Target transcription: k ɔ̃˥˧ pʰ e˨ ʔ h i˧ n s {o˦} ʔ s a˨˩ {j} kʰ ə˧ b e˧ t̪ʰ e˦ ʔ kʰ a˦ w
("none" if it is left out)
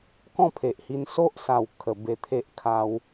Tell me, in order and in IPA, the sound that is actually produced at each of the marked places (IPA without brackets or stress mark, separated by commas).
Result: o˦, w